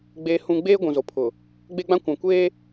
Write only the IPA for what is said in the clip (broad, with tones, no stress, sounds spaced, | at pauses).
ɡ͡b eː˦ h ũ˦ ɡ͡b eː˦ ɡʷ ũ˨ z o˨ pʰ ʊ˨ | ɡ͡b e˦ ɡ͡b ã˦ kʷ ã˨ kʷ eː˦